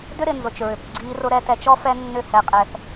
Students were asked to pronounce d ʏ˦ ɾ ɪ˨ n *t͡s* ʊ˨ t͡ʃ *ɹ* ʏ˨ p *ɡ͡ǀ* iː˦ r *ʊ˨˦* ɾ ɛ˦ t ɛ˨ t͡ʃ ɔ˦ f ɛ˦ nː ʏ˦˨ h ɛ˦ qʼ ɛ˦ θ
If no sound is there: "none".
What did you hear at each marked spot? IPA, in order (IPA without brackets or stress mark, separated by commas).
z, ɹ, ɡ͡ǀ, ʊ˦